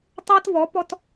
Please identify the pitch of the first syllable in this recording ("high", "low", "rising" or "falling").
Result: high